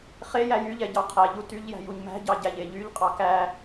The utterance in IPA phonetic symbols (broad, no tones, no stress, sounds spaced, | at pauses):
χ e j æ j y ʎ ɛ ɟ ɑ qʰ æ ʎ u t y ʎ j æ̤ j u ɲ m æ̤ ɟ ɑ ɟ æ ʎ e ʎ y ʎ qʼ ɑ k æ